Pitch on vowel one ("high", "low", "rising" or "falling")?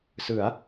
rising